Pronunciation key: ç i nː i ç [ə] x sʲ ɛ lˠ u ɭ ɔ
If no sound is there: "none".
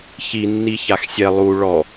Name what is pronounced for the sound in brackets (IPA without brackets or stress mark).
a